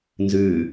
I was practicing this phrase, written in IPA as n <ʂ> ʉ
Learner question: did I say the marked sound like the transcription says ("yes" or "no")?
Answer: no